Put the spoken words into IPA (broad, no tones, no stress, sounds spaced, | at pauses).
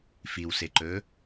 f i w s e ǃ ɵː